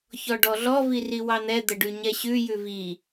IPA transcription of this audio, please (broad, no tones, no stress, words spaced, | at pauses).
çɔɖɔɮɔ viriwɑn̪ɛ d̪əɖʉɲɛɕʉ jʉvi